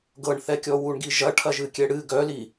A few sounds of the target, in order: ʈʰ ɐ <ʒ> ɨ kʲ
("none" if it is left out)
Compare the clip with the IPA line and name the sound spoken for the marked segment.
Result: ʒ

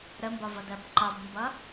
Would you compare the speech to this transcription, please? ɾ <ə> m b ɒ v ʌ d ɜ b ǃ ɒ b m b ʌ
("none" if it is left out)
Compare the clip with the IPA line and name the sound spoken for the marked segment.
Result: ə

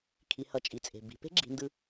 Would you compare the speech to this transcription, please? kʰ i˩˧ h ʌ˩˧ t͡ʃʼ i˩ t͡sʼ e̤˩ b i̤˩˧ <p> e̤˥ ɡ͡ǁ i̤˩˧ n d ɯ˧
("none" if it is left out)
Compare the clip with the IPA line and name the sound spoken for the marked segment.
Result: p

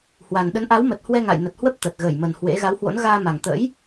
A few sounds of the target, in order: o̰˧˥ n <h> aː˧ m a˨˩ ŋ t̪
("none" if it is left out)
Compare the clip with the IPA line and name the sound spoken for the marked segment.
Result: ɣ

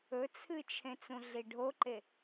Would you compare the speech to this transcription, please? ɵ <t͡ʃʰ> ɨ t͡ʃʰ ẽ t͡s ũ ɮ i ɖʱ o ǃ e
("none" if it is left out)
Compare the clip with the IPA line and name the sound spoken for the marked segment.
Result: t͡sʰ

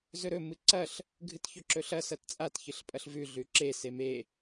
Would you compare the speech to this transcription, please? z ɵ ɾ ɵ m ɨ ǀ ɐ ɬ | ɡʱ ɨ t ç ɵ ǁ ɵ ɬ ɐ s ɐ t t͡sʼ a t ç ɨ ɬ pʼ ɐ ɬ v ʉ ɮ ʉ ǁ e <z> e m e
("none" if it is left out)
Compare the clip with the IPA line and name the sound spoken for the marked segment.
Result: s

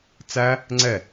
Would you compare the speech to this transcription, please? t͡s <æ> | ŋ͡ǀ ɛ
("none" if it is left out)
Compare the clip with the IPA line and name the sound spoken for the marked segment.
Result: æ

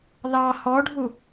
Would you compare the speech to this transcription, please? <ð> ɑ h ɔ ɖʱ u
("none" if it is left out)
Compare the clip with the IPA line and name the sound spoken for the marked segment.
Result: ð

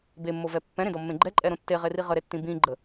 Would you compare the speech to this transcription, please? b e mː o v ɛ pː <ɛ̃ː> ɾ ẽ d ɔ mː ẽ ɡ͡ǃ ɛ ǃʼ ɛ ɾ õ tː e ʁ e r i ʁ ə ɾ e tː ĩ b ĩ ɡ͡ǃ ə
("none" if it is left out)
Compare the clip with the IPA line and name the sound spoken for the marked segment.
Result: ɛ̃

